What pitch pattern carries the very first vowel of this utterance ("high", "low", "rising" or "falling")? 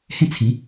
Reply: falling